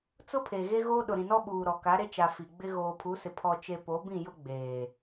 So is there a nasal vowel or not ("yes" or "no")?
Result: yes